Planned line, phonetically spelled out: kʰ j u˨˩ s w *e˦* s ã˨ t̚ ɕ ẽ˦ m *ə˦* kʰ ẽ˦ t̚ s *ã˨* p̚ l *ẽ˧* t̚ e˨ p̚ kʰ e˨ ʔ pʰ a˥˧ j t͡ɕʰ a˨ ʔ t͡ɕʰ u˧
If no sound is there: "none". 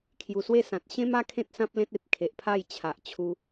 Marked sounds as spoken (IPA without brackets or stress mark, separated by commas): e˥˧, a˦, ã˦, ẽ˦